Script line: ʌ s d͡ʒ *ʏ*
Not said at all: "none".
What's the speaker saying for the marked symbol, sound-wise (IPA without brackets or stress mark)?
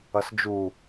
u